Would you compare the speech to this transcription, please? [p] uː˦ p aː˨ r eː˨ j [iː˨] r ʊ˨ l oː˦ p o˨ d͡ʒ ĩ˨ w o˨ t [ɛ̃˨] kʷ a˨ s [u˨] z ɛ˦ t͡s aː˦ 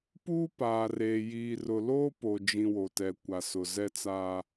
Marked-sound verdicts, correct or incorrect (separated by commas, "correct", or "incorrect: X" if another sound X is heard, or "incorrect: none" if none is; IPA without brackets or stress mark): correct, correct, incorrect: ɛ˨, incorrect: ʊ˨